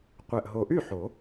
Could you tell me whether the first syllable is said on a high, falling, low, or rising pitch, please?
low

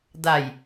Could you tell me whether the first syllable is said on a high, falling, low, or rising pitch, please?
low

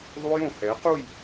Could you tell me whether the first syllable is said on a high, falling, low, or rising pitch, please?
high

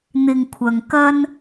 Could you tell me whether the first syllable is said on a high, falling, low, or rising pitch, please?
low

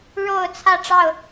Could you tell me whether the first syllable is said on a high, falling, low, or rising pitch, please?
falling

